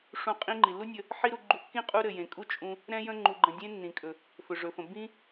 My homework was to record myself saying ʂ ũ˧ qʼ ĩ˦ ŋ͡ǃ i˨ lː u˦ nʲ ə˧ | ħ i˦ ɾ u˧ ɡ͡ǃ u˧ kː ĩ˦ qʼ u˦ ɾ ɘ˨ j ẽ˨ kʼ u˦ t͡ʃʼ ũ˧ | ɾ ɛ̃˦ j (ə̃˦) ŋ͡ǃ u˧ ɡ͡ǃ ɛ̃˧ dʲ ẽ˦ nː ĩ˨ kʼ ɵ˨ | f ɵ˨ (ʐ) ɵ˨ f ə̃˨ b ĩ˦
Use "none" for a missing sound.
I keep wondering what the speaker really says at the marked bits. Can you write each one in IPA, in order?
ə̃˦, ʐ

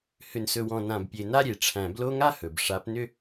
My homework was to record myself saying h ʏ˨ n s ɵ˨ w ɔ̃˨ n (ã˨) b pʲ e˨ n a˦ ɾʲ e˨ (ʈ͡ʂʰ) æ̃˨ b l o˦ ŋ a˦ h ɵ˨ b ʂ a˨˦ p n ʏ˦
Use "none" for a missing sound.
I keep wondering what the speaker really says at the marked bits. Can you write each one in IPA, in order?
ã˨, ʈ͡ʂʰ

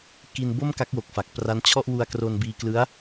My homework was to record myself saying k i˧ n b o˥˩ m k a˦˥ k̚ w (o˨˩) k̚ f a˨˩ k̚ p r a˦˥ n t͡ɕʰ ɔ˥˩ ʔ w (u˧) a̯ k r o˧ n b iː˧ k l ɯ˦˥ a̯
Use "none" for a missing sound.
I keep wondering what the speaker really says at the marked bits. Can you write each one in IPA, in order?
o˨˩, u˧

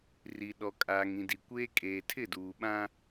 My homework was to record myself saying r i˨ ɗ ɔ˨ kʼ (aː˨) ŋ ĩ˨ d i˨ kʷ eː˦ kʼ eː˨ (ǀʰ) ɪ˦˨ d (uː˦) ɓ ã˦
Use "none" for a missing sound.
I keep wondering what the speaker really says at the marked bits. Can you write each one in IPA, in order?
aː˨, tʰ, uː˨

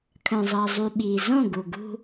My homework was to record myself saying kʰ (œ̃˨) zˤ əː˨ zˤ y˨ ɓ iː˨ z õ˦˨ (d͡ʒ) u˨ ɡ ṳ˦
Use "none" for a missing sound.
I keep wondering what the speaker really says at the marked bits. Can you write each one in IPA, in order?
œ̃˨, ɡ

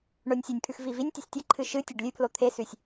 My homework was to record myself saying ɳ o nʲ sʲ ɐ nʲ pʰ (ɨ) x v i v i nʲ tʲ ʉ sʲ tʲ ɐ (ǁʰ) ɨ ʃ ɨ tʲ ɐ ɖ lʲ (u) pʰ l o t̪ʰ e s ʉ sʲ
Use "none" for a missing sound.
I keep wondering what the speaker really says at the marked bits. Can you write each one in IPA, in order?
ʉ, ǃʰ, ʉ

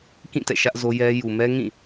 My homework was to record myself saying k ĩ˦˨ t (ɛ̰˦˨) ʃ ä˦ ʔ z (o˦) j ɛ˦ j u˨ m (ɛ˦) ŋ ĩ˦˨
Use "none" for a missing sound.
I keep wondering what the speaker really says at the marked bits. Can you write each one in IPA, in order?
ɛ̰˦˨, o˦, ɛ˦

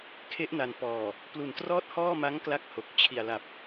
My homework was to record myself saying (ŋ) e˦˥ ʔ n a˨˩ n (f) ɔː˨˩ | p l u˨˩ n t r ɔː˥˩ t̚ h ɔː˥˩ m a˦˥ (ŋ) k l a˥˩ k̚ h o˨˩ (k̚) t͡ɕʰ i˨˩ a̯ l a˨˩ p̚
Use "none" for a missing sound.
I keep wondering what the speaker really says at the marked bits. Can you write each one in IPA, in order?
kʰ, p, ŋ, k̚

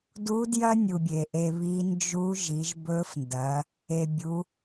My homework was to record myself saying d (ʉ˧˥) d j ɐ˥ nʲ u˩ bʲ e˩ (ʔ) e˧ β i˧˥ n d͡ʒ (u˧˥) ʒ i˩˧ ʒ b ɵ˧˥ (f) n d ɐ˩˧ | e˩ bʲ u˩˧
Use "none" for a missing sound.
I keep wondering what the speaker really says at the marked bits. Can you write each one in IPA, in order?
u˧˥, ʔ, u˧˥, f

